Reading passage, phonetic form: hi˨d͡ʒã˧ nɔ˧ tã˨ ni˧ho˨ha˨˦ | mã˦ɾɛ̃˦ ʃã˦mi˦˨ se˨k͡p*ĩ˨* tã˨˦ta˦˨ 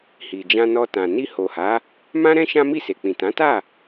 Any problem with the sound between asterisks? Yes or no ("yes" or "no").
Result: no